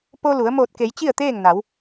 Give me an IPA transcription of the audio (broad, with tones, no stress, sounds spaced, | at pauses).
p o˧ l u˩˧ ə̯ m oː˧˩ t̚ k e˩˧ j t͡ɕ i˥˨ ə̯ t̪ eː˥˨ ŋ n a˩˧ w